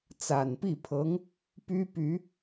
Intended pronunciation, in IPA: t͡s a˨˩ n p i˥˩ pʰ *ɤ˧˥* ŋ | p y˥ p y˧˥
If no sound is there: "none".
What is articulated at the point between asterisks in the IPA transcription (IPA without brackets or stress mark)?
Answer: ɤ˧˥